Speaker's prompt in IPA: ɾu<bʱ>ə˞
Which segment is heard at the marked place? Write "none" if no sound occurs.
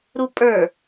pʼ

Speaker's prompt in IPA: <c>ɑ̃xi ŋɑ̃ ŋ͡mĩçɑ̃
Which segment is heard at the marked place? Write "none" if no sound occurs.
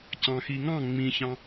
c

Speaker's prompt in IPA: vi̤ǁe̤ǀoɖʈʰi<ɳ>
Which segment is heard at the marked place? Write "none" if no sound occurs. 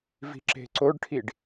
ɖ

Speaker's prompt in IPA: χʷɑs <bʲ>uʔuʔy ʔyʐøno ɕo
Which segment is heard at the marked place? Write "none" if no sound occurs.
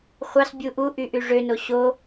bʲ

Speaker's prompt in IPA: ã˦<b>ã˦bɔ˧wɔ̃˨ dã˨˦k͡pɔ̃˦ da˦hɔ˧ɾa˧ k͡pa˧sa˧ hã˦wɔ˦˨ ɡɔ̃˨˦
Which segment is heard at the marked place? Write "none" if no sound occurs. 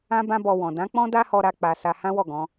b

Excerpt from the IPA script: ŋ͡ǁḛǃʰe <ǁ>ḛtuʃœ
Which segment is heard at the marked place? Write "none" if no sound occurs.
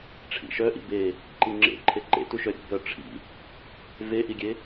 ǃ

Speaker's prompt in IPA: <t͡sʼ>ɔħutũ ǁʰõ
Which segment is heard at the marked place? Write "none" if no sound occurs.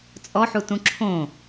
t͡sʼ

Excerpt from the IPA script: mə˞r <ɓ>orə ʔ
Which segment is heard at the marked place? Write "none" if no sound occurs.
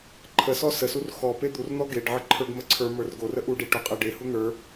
ɡ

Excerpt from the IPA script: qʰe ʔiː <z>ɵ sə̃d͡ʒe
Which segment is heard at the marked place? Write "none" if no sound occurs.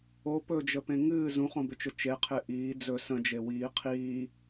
d͡z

